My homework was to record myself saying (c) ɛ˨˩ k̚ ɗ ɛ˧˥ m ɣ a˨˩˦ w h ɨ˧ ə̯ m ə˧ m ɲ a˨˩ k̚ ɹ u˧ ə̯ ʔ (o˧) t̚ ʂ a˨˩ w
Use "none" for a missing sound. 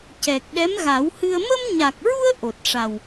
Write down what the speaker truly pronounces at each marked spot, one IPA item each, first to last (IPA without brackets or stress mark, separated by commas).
c, o˨˩